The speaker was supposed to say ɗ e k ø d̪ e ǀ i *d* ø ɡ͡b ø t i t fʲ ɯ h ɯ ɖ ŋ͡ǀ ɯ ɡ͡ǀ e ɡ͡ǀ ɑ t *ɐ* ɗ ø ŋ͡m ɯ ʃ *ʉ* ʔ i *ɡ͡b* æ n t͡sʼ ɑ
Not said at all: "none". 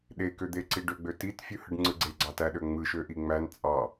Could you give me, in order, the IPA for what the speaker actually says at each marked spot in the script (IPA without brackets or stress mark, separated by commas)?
ɖ, æ, ø, ŋ͡m